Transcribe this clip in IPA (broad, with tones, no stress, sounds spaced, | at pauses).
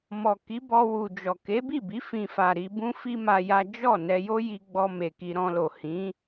m ɔ˨ k i˨˦ b ɔ˧ w u˨ d͡ʒ ɔ˨ k e˨˦ b i˦˨ b i˨˦ f ĩ˧ f a˨ ɾ i˧ b ũ˦ f i˦ m a˧ j a˦ d͡ʒ ɔ˦˨ n ɛ˧ j o˦ j i˧ ɡ͡b ɔ˧ m e˨ k i˧ ɾ ɔ̃˧ l o˨ h ĩ˨˦